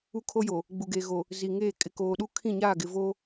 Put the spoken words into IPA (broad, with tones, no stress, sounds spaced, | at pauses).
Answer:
u˦ kʰ o˦ j o˨ | ɡ͡b u˨ ɡ eː˨ ɣ o˨ | z i˨ ŋ eː˦˨ kʼ ɪ˨ k oː˨ ɗ u˦ kʰ ĩ˦˨ ɲ aː˦˨ ɡ ɪ˨ v o˦